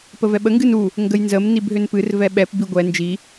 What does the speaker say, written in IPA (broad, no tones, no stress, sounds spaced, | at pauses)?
p ə v ɛ ɓ ə ŋ ɡ ɨ n u | ŋ ɡ ə j n z ə m n i b ɦ ʏ n p ɨ r v ɛ ɓ ɛ p b i ɡʷ ɛ n d͡ʒ i